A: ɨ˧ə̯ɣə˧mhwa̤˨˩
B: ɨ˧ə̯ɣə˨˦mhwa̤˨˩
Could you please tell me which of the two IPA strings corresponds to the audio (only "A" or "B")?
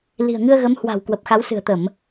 B